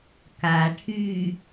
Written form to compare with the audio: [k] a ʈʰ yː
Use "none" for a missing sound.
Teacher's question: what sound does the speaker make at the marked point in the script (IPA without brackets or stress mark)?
k